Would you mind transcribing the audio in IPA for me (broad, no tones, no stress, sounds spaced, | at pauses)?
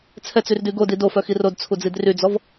t͡sʰ ɛ t͡s y r d y ɡ o d i d o f œ x i r o d t͡sʰ u d͡z i d r y d͡z ɔ v